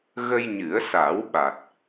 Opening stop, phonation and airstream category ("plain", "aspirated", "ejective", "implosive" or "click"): implosive